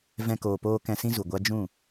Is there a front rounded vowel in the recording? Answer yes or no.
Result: no